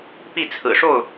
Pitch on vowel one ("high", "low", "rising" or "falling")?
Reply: falling